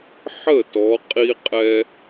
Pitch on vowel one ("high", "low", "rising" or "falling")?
falling